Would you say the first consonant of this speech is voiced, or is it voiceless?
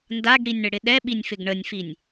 voiced